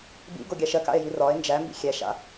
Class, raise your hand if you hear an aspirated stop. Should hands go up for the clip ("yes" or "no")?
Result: no